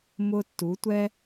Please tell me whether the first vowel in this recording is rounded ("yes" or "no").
yes